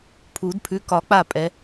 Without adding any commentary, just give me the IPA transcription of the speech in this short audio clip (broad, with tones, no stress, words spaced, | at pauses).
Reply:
pʰu˨˩˦dpʰʉ˨˦ kɒ˨˩˦ k͡pa˥˨pʼɛ˨˦